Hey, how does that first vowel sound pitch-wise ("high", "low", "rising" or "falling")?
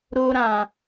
high